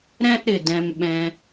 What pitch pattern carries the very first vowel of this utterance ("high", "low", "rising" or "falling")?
high